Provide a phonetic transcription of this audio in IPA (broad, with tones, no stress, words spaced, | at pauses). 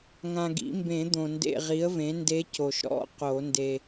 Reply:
ŋã˨ɡḭ˨˩˦mbẽ˨˩˦ d̪õ˨ndḛ˦˨ ʁi˩˥ə̯vẽ˩˥nde˧˥ co˨ʃɾɔ̰˧˥˧ qo˨˩˦nde˨